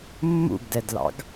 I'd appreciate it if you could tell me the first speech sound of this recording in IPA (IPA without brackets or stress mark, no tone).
mː